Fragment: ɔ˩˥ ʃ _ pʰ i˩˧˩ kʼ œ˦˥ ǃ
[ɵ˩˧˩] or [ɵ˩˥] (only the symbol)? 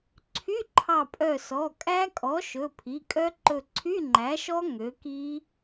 ɵ˩˧˩